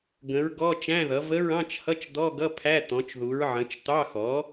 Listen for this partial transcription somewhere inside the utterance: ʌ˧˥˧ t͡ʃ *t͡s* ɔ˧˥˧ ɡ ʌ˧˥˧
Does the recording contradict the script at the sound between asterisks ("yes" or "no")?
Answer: yes